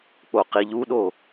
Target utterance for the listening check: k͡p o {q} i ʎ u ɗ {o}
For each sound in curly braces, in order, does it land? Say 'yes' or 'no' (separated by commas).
yes, yes